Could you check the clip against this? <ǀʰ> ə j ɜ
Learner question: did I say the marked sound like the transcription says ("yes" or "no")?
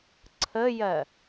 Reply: yes